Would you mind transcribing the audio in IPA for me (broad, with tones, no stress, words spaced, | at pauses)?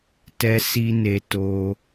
tɛ˦ sʰi˦ne˨ to˨